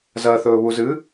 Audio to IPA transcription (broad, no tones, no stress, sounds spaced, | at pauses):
z ɐ θ ɵː β u z ɨ